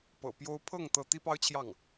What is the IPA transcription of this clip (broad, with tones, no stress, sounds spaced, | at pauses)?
p ɤ̰˨˩ p j o˥ ʊ̯ pʰ ɤ˥˩ ŋ t̪ ɤ˥ t̪ i˥ p ɑ˥ ʊ̯ t͡ɕʰ j ɑ˥˩ ŋ